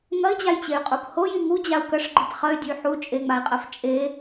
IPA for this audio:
ŋɐi̯d͡ʑajt͡ɕey̯qʼop hoji ŋud͡ʑau̯ kɐʂɡ͡ǃip χɐy̯dʲʉy̯ ħu t͡ʃʼeŋ͡mai̯qʼɐf t͡ʃʼe

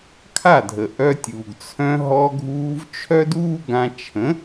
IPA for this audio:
kʰa˥˩dʱə˩ ʔœ˧tʲuː˩ɡ t͡sʰœ̃˧ɦɔ˧ɡʱuː˧v t͡ʃʰœ˥duː˥ɡã˧ t͡ʃʰə̃˩˥

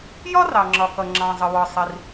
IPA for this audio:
jɒ˥rɑ˩ŋ͡ǁɒ˩kʌ˩ ŋ͡ǁɑ̃˩zˤə˩wɒ˩ sˤi˩r

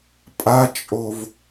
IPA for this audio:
pʼat͡ʃʼov

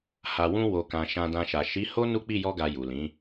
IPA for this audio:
ha˨wũ˧ wo˨kã˨ ʃã˧dã˧ʃa˨ ʃi˨˦ ho˦ nu˦k͡pi˦˨jɔ˧ɡa˨ ju˨lĩ˨˦

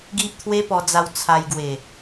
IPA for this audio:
ɡi˦ʔ t̪ʰwe˦pɔ˧d͡za˧w t͡sʰa˧jɡwe˨˩

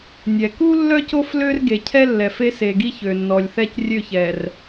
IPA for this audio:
nʲɛ˨ ku˦ lːœ˦co˦f lø˦rɡe˨ cʰɛ˦lːɛ˨fe˦ se˨ɡi˦ çø˨nːɔ˨lʲθɛ˦c rʲø˦˨çɛ˨r

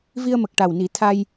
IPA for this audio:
vi˧ə̯mə˨˩k̚ ʈa˨˩wni˨˩˦ t̪ʰa˧j

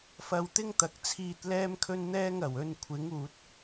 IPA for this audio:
fɐ˧wt̪ɪ˥ŋt̪ɐ˨k̚t͡sʰiː˧t̚ lɛː˧mkʰɵ˧nn̪ɛː˧ŋ ɐ˨˩wɵ˧n kʷʰɪ˨˥ŋuː˨t̚

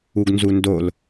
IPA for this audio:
uɡnzundol

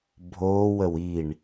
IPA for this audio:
bʱoːwəw iɳ

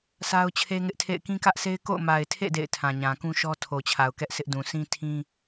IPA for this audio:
sʰa˦ʊ̯t͡ɕʰe˦ŋɪ˦ʔtʰḛ˦˨ɪ̯ kĩ˦kä˦ʔsʰe˦ɪ̯ko̰˦˨ʊ̯ ma˨ɪ̯tʰḛ˦˨ dḛ˦˨ɪ̯tʰã˨ɲã˨ kũ˦ʃɔ˦ tʰo˨t͡ɕʰa˨ʊ̯ kɛ˦ʔ sɪ˦ʔdũ˨ sʰĩ˦tʰĩ˦

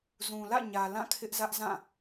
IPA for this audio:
zũ˨lä̰˦˨ɲä˨ lã˦˨kʰɪ˦ʔzä˦ʔ zã˦˨

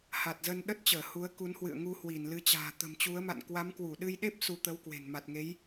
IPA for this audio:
ha˨˩t̚zə˧nɗə˦˥t̚t͡ɕəː˧˩ hu˨˦ə̯ku˨˦nhwɨ̰˧˨ə̯ ŋu˧hwi˧˩nlɨ˨˦t͡ɕa̤ː˨˩ t̪ə̤˨˩mt͡ɕu˨˦ə̯ma̰˧˨n kwa˨˦mkwu˧˩ ɗɨ˧jɗe˦˥p̚ su˧t̪ə˨˦wkwe̤˨˩n ma˨˩t̚ŋe˨˦j

